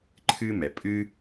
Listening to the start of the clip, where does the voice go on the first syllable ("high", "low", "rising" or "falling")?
high